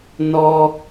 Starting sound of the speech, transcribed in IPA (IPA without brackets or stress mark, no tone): n